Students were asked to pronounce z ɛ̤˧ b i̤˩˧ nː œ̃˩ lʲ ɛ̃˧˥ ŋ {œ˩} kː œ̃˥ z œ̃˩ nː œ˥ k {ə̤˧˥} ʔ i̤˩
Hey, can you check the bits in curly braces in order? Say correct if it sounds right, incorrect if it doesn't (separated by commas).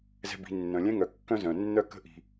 correct, correct